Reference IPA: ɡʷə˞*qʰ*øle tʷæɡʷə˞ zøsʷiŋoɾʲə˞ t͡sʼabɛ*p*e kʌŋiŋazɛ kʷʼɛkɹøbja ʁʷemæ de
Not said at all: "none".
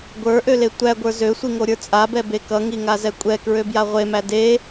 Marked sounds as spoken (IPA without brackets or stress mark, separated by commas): ʔ, b